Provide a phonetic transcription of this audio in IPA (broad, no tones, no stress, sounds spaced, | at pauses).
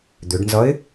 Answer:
d̪ ʏ ɖ n z ʌ ɪ̯